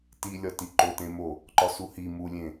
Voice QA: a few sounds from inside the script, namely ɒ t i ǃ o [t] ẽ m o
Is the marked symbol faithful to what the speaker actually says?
yes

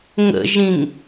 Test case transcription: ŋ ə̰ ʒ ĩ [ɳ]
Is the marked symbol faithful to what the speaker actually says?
no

